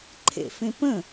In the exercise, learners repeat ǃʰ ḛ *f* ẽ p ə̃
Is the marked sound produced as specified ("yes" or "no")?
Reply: yes